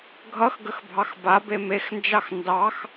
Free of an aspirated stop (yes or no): yes